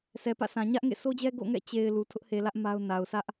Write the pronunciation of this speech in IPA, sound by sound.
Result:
sɛ˨pä̰˦˨sʰã˨ ɲä˦ʔŋḛ˦˨ so˦d͡ʑɛ˦ ɡo̰˦˨ŋɛ̰˦˨ t͡ɕe˨ɪ̯ lu˨ tʰʊ˦ʔhe˨lä˦ʔ ma˦ʊ̯ na˨ʊ̯ sä˦ʔ

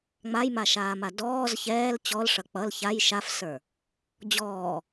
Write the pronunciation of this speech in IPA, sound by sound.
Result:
ŋ͡majmaʃaːma dɔːz çɛːl t͡ɕɔlʂʌ k͡pʌl çaj ʃafsə˞ | d͡ʑɔː

